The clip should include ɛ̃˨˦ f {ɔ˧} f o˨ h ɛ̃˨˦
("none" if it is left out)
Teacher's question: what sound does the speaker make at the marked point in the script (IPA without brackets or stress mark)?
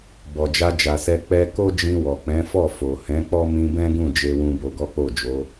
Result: ɔ˦˨